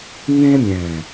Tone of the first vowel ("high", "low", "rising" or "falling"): high